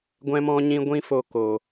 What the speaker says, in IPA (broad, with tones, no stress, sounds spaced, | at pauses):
ɡʷ ɛ̃˦ m ɔ̃˦ ɲ ĩ˦ ɡʷ ĩ˦ f o˧ k o˨